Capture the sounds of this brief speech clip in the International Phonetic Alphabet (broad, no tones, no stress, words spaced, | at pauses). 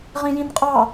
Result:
ʁĩjĩnqʼɑ